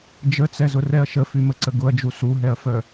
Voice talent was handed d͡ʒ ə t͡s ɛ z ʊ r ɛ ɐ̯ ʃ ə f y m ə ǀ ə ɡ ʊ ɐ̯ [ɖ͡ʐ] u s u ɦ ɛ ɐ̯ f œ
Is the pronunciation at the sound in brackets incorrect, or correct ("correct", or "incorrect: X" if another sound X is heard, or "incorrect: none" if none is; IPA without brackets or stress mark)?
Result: incorrect: d͡ʒ